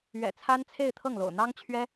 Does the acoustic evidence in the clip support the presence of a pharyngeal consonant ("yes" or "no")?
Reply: no